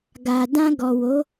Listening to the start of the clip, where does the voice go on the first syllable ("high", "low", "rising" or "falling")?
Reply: low